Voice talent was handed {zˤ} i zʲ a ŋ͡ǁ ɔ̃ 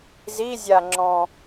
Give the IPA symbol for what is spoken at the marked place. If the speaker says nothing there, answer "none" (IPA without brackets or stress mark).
z